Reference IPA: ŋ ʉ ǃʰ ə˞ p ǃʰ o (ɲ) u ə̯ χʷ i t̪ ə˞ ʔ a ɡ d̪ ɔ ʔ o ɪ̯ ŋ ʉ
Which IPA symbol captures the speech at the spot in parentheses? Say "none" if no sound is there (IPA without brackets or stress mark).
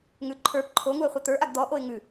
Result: ŋ